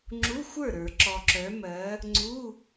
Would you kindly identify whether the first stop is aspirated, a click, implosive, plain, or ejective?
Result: click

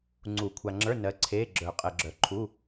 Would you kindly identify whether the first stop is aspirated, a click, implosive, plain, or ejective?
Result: click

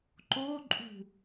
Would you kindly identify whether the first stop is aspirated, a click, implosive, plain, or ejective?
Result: click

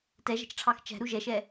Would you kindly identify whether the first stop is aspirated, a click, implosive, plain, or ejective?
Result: plain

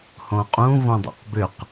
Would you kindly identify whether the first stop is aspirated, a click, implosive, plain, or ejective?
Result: ejective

